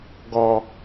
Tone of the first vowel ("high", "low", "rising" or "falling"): low